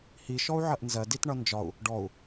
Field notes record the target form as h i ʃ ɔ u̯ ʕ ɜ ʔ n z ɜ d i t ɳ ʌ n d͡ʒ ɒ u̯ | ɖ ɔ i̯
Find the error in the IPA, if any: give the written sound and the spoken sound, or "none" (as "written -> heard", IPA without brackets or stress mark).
i̯ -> u̯